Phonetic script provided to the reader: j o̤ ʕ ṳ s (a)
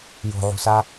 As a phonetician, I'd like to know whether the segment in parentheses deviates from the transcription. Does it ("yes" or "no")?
no